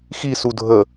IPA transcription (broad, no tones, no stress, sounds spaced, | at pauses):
x i s u dʱ ə